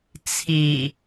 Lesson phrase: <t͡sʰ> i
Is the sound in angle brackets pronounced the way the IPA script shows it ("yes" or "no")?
yes